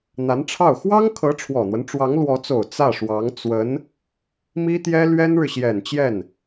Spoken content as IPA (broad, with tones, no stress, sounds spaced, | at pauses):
n̪ a˧˥ n ʈ͡ʂʰ ɑ˥˩ ʊ̯ x w ɑ˥ ŋ kʰ ɤ˧˥ ʈ͡ʂʰ w ɔ˨˩ n̪ w ə˦ n ʈ͡ʂ w ɑ˧˥ ŋ l w ɔ˧˥ t͡s o˨˩ ʊ̯ t͡s ä˥˩ ʂ w ɑ˧˥ ŋ t͡s w ə˧˥ n | m i˥ t̪ j ɛ˥ l ɥ ɛ˥ n ɻ ɻ̩˨ ɕ j ɛ˨˩ n t͡ɕ j ɛ˥˩ n